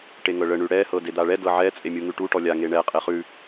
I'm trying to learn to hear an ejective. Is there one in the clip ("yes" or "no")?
yes